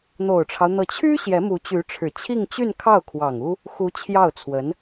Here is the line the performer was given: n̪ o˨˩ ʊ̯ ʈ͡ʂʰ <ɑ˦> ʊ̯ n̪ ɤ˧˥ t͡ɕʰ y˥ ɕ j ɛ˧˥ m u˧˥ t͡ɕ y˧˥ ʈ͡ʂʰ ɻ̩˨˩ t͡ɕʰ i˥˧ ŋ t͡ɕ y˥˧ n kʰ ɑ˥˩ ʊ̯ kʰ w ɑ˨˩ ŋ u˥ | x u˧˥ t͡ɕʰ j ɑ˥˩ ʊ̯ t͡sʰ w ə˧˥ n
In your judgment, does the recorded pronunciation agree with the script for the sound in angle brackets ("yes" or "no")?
yes